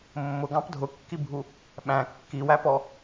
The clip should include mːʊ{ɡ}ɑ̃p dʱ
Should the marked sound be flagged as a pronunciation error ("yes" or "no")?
no